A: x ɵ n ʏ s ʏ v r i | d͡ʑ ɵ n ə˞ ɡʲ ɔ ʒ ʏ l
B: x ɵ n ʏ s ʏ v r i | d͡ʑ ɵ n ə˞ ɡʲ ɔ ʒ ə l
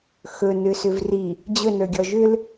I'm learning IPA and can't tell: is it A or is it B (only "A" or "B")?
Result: A